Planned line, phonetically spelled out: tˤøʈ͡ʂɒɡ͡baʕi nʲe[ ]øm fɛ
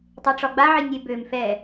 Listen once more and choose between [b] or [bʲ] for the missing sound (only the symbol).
b